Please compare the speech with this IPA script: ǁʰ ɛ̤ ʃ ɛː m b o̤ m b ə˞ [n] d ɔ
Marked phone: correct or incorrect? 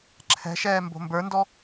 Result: correct